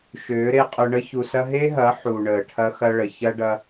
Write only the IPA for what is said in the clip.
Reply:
ʃøː˨˦ɾe˧qʼʊ˧ ɳə˦ çu˨sɐ˧ɦe˦ɦɐː˨˦ ħu˨ ɳəː˨ʈʰɐ˧xɐ˧ɭə˨ çɐ˦ɖɐ˦

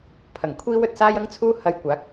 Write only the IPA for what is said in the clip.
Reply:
pʰɐ˨˩ŋ kʷʰiː˥wɵ˨t̚ saː˥jɐ˥ŋt͡sʰuː˥ hɐ˧jkʷaː˨˥k̚

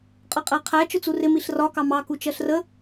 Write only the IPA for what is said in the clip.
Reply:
qʼʌqʼæqʰæ t͡ʃʊt͡surɪ miɬrɒ kɑmɑ kut͡ʃɜɬrə

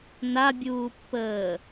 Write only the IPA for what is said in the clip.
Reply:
nabʲuːpːəː

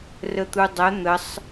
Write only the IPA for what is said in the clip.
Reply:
rət̪udˤɛ n̪əsˤ

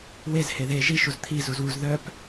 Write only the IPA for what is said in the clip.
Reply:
wez heðe ʒiʃuz t̪ʰi zuzwuz ðœp

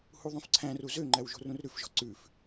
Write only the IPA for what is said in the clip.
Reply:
huðˤõfǀʰæ̃ru zøŋ͡ǃæw ʒo̤rũrɾʉfʒɔ̤ ǀʉf

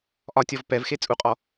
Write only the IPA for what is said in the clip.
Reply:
ʔɒtʲɔv pɛvxe t͡sʼuqʼɔ

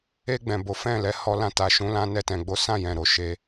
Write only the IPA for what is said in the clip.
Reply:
e˧ ɡ͡bɛ̃˨bo˨˦ fɛ̃˦˨lɛ˨˦ hɔ˧lã˧ta˨ ʃũ˨˦lã˧ nɛ˧tɛ̃˨ɡ͡bo˨˦sã˦˨ jɛ̃˨ɾo˨ʃe˧

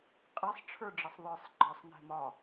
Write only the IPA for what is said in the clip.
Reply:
qʼɛsˤ ʈ͡ʂʰə˞ɖ͡ʐəsˤðˤə˞sˤ ɡ͡ǃɒsˤnɛ̤ mɒ

